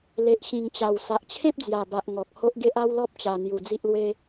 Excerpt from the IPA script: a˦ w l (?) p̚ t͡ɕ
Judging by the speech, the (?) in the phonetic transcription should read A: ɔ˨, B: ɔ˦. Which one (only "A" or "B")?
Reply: B